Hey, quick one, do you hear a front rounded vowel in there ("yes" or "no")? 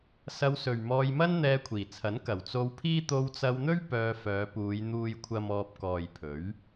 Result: yes